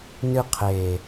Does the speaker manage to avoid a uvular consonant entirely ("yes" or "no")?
no